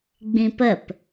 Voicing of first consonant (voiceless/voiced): voiced